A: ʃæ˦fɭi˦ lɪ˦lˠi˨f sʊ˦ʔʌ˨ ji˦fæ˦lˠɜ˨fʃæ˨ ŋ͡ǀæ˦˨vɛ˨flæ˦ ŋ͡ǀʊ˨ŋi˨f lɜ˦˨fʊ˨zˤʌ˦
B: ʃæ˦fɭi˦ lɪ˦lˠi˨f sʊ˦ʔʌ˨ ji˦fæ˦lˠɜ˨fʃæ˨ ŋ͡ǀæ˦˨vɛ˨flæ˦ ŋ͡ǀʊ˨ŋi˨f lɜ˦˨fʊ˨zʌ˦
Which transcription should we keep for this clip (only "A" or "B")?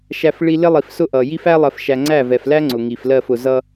B